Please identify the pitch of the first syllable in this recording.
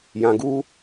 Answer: low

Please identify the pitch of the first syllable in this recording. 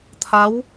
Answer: rising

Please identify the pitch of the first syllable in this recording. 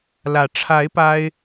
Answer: rising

